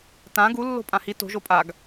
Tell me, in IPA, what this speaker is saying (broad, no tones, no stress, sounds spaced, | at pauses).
t ã ɡ u lː o̤ pʼ ã h i t o̤ ʒ o pʼ a ɡ